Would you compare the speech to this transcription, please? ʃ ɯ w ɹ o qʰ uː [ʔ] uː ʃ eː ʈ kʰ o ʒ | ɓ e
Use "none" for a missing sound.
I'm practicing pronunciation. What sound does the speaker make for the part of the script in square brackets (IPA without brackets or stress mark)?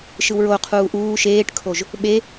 ʔ